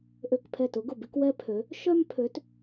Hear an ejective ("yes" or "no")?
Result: no